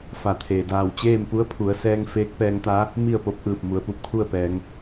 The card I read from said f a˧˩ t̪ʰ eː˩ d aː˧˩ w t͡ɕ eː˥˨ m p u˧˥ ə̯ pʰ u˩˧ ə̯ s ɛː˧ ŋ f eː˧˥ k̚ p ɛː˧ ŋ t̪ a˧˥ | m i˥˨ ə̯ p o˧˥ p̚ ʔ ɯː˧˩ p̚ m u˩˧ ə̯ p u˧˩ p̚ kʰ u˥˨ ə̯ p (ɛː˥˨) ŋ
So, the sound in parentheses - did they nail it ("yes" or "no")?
no